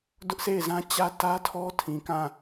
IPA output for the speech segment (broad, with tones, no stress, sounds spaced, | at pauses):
d ʊ˦ ʔ sʰ e˦˨ ɪ̯ z ã˦ t͡ɕ ä˦ t ä˦ tʰ ɔ˦ tʰ ĩ˨ k ã˦˨